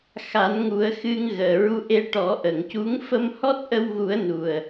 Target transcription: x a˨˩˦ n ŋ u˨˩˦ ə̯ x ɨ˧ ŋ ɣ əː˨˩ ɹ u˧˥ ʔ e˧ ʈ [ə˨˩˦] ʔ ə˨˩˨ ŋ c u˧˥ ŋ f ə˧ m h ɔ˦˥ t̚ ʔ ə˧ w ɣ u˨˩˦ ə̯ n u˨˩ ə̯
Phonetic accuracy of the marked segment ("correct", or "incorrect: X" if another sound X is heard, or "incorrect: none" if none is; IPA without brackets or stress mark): incorrect: ɔ˨˩˦